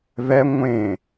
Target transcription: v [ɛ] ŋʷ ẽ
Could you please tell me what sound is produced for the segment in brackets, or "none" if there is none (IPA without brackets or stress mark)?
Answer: ɛ